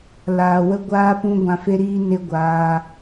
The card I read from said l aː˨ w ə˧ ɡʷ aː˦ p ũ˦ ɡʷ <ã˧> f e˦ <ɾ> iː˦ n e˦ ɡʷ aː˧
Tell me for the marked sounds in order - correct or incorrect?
correct, correct

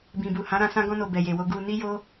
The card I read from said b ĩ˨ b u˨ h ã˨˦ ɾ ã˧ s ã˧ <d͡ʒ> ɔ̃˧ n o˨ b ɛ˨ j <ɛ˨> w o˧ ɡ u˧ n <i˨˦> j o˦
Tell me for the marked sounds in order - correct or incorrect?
incorrect, incorrect, incorrect

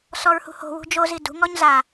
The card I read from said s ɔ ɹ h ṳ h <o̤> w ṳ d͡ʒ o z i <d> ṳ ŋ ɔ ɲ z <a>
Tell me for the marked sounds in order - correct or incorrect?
correct, correct, correct

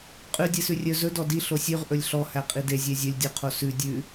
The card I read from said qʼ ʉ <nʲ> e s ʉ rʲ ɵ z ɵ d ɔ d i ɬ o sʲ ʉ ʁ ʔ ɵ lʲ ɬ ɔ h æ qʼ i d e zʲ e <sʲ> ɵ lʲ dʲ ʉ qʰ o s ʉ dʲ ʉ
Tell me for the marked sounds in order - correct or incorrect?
incorrect, incorrect

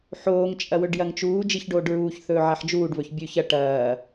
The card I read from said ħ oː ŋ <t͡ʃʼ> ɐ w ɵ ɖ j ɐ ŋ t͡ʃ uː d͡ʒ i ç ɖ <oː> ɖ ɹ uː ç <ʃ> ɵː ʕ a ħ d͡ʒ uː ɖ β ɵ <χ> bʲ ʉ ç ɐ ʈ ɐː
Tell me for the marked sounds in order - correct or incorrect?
correct, correct, incorrect, incorrect

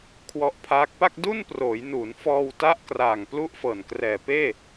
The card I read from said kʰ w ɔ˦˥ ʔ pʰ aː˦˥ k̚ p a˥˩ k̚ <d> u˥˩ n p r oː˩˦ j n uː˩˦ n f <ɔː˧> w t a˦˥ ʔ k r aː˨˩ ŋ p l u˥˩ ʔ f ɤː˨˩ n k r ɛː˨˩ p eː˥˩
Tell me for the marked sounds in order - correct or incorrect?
correct, correct

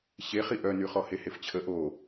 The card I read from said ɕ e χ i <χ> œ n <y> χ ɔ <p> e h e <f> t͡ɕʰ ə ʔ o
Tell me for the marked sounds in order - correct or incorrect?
incorrect, correct, incorrect, correct

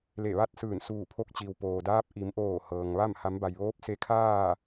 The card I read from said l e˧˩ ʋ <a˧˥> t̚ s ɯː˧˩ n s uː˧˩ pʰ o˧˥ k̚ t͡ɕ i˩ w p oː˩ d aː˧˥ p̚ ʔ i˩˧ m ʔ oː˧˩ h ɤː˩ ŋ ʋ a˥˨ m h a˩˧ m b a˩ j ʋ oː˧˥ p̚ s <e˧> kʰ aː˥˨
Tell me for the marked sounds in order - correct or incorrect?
incorrect, correct

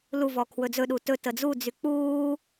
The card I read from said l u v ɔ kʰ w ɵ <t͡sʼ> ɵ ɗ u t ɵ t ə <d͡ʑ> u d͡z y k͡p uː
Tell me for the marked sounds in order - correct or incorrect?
incorrect, incorrect

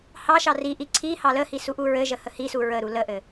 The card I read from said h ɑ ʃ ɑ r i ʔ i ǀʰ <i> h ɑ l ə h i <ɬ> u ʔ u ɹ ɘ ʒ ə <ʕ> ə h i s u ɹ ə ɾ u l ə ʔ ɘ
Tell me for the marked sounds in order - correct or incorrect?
correct, incorrect, incorrect

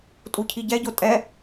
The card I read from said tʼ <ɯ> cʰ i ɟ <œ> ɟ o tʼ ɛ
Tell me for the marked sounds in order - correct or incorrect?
incorrect, incorrect

